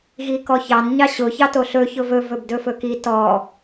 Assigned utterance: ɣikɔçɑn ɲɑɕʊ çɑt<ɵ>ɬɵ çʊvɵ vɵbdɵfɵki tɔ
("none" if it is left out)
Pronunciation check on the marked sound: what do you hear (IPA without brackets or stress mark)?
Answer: o